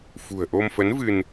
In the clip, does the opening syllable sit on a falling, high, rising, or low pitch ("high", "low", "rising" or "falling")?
low